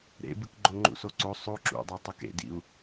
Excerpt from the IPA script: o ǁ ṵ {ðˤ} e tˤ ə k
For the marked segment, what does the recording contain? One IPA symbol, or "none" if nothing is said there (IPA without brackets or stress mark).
dˤ